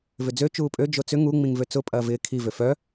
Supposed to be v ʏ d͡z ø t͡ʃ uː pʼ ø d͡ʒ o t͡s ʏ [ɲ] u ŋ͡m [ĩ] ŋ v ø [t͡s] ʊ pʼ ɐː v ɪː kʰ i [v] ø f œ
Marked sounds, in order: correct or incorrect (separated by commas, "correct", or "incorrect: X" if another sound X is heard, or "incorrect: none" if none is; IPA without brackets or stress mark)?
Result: incorrect: ŋ, correct, correct, correct